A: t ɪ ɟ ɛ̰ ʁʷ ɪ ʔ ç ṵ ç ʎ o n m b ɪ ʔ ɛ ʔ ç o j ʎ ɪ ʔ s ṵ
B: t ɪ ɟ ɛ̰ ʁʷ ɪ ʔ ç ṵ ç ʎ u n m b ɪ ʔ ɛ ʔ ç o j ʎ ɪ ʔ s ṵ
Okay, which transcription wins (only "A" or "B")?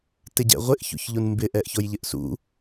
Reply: B